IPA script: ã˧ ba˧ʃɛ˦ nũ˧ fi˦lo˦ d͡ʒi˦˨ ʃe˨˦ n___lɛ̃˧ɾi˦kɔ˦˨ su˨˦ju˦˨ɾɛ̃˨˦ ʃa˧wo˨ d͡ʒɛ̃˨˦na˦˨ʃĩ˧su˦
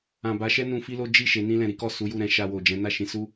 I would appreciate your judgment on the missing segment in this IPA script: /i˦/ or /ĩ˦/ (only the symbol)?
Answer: ĩ˦